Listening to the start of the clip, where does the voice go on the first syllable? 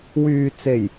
low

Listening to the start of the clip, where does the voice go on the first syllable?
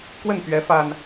falling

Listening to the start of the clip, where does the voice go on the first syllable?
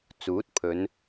rising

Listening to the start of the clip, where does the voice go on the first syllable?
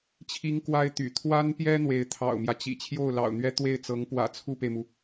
high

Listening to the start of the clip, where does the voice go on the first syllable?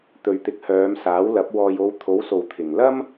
low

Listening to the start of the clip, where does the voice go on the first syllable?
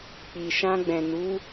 low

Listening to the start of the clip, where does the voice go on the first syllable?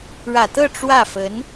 low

